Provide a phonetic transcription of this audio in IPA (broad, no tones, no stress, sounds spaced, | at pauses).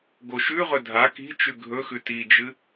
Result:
ɡ o ʃ ʉ ʁ ɵ dʱ a k i̤ t͡ʃ ʉ ɡʱ ɵ x ʉ t i d͡ʒ ɨ